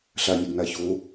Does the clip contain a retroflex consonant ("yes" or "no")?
no